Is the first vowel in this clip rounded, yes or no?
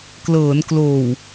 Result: no